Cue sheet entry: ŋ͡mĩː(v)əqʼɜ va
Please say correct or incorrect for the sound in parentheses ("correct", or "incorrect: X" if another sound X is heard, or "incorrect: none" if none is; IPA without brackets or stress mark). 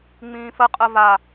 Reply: incorrect: f